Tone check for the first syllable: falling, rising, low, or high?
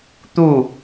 falling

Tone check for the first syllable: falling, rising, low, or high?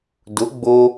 rising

